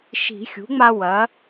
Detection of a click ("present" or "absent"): absent